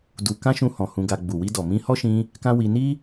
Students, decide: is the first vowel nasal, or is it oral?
oral